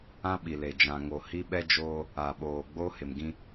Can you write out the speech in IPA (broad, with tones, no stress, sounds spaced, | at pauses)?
ã˦ ɓ i˨ l e˨ d͡ʒ ã˨ ŋ o˨ h i˦ ɓ ɛ˦ d͡ʒ oː˦ | a˨ ɓ oː˨ ɡ͡b o˦ h ɪ˨ m ɡ ĩ˦